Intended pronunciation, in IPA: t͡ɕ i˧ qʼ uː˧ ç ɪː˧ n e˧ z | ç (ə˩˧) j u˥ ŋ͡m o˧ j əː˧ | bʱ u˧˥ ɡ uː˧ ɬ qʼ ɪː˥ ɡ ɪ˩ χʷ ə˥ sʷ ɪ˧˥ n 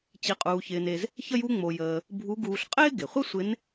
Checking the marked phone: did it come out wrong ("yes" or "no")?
yes